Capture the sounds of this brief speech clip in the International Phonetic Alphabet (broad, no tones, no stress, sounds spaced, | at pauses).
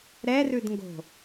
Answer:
ɾ ɛ r ʉ d ŋ ɡ o̤